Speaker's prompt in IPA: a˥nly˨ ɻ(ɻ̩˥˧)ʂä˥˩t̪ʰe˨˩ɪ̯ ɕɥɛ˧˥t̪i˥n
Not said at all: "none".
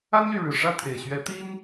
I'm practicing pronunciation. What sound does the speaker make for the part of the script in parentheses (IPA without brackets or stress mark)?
ɻ̩˨˩